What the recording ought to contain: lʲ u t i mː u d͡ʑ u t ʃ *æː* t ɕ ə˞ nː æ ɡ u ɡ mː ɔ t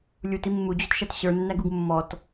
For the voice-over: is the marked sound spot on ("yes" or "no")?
no